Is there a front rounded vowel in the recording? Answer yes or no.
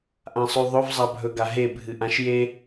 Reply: no